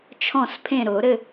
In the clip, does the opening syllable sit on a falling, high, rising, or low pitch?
falling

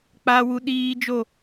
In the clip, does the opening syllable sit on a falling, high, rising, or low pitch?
high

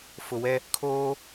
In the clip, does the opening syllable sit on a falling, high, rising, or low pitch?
low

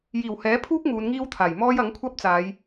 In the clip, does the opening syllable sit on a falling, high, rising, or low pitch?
low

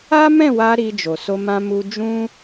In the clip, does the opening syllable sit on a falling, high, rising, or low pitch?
high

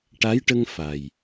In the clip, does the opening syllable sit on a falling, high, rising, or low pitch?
rising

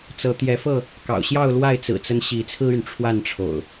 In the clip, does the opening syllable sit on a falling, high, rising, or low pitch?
rising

